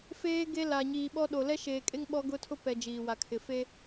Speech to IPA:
f eː˦ ɡ e˦ l a˨ ɲ iː˨ ɓ ɔ˦ ɗ o˨ l ɛ˦ ʃ eː˨ kʼ e˦ ŋ ɓ ɔ˦ ɡ ʊ˦ tʰ ʊ˦ p ɛ˨ d͡ʒ iː˨ w a˨ kʰ ɪ˨ f e˦

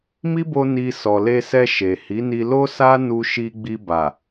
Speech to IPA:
m i˦ b o˧ n i˧ s ɔ˨ l e˧ s ɛ˧ ʃ e˨ h i˨˦ n i˧ l o˦ s a˦ n u˧ ʃ i˧ ɡ͡b i˧ b a˨

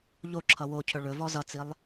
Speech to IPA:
ʎ o ǁʰ ʌ w o cʰ ɵ ɭ ɵ v ɔ z ʌ t͡s i lˠ

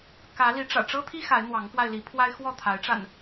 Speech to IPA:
k ä˨˦ l i˨˦ ʈ͡ʂ ä̰˨˩ ʈ͡ʂ ɤ˦ t̪ʰ i˦ x a˨˦ ɪ̯ n̪ w ɑ˨˦ ŋ k w a˧ ɪ̯ l i˨˦ pʰ w a˦ ɪ̯ x w ɔ˥˨ t̪ʰ a˨˦ ɪ̯ ʈ͡ʂ a̰˨˩ n

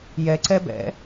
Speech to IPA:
j ɛ ǀ ɛ b ɛ̰

